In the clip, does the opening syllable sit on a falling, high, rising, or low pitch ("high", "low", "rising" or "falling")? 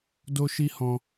high